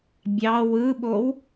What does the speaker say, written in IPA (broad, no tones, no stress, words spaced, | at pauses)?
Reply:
bʲɑ wɯɓow